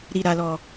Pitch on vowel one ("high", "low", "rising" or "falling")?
low